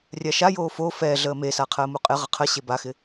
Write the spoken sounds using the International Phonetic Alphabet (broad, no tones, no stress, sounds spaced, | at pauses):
rʲ a ʃ a j oː f o f ɛ ɮ əː m e s a qʰ əː m u qʼ ɪ ʁ ə qʰ ə ɕ e b a x ɪ